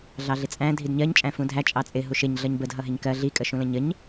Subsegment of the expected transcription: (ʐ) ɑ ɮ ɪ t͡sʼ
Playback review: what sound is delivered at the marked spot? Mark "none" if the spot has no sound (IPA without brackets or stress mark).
ɮ